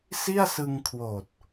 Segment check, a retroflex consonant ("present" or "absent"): absent